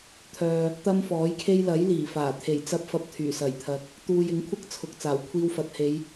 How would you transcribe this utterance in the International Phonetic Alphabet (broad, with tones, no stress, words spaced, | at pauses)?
t̪ʰœː˨ | t̪ɐ˥mfɔː˨˥jkʰe˥j lɐ˨˥jliː˨˩faː˨˩ t̪ʰe˨˩jt͡sɐ˧p̚ fɐ˧p̚t̪ʰyː˨˩ sɐ˨˩j t̪ʰɐ˨k̚ | t̪uː˧j ɪ˨˥ŋkʷʰɐ˥k̚ t͡sʰʊ˨k̚ t͡saː˨˩w kʷʰiː˧wfɐ˨t̚ he˨˧j